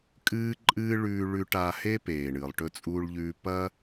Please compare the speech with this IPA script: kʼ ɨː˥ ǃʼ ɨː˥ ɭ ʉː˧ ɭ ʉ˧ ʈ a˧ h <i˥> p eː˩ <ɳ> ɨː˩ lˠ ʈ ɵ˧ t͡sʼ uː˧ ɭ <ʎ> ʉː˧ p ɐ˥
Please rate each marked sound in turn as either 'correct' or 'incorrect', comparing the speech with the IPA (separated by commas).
incorrect, correct, correct